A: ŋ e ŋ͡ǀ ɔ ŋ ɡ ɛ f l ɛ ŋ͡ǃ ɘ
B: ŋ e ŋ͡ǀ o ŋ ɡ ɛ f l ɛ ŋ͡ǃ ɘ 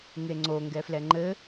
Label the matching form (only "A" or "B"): B